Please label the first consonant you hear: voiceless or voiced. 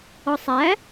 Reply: voiceless